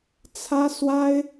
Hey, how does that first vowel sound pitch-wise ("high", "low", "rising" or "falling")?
high